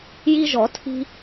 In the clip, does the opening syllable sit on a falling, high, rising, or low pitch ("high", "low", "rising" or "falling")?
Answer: high